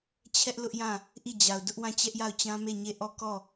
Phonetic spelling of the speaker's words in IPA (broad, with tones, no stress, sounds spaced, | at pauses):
t͡ɕʰ ɛ˦ ʔ l ʊ˦ ʔ j ã˦˨ | ʔ i˦˨ d͡ʑ a˨ ʊ̯ d ʊ˦ ʔ w ã˦˨ t͡ɕ ɛ˦ ʔ j a˦˨ ʊ̯ t͡ɕ ã˦ m e˦˨ ɲ e˦˨ ʔ ɔ˦˨ k ɔ˦˨